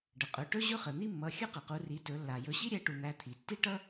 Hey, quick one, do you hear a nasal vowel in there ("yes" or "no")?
no